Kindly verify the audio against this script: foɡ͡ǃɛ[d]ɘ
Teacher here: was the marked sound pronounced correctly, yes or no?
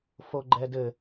yes